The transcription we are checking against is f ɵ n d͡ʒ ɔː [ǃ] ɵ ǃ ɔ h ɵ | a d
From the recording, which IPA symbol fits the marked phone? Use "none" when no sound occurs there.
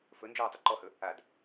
tˤ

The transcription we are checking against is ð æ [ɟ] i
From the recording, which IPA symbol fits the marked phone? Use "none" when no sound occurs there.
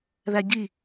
ɟ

